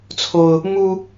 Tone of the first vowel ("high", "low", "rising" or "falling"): high